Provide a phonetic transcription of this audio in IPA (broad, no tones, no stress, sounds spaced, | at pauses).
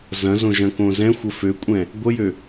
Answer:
z ɐ̃ z õ ʒ ɐ̃ k õ z ɛ̃ xʷ ə f ø kʷʼ ɛ̃ | ɡʷ ə j ø